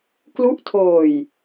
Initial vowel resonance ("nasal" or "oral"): oral